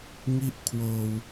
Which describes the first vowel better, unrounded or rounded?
unrounded